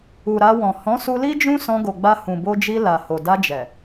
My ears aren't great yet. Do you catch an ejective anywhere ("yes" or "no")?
no